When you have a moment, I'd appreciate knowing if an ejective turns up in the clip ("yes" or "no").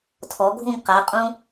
yes